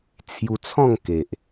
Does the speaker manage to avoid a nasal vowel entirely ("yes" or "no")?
no